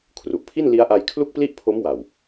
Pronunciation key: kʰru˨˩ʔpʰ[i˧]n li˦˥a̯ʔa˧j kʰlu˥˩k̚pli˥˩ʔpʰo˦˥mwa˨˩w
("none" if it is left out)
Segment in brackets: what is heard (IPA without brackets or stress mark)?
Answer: i˥˩